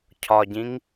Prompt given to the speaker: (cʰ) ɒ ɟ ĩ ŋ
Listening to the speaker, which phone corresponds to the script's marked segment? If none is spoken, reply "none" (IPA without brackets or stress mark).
cʰ